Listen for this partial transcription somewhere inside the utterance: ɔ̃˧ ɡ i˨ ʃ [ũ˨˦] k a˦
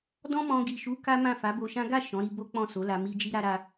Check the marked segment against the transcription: incorrect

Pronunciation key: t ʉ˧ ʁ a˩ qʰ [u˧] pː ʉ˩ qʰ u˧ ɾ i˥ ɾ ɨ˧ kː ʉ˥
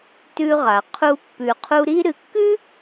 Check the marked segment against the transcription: correct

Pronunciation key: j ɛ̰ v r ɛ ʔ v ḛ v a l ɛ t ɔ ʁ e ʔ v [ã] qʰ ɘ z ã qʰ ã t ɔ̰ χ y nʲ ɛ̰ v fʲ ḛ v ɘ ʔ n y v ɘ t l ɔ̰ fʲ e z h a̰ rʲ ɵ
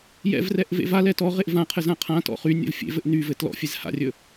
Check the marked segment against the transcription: correct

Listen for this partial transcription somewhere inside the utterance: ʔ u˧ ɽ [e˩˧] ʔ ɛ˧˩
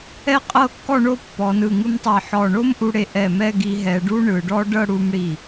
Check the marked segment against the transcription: incorrect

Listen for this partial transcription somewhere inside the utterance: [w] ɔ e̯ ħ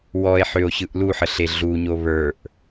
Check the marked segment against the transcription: correct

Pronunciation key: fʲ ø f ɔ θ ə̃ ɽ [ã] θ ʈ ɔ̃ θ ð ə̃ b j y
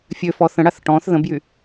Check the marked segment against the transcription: incorrect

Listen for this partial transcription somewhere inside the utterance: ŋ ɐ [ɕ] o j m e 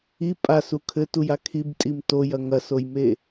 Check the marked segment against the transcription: incorrect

